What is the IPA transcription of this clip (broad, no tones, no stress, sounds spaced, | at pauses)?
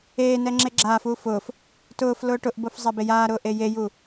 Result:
eː n ɛ ŋ͡ǁ e ɡ͡ǁ aː f uː f ʊː f | t ʊː f l ʊː ʈ ʊ ʔ b o f zˤ ɛ b e j aː ɾ ʊː ʔ e j e j u